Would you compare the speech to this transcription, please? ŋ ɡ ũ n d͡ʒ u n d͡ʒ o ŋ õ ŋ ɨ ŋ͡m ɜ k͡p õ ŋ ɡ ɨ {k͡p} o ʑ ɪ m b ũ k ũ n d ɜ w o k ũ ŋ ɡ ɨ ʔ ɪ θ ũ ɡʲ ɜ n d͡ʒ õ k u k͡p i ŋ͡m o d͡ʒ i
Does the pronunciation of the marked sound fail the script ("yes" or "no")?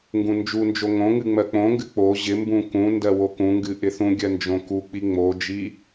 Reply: no